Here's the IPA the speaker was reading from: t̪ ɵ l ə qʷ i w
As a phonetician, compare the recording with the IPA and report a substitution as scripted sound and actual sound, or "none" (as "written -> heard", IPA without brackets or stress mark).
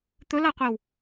ə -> a